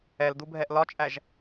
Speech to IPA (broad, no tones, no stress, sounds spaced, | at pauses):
ɛ l d u bʱ ɛ ʔ l ɒ t͡ʃʼ æ ʒ